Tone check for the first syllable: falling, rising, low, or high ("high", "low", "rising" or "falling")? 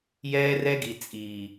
high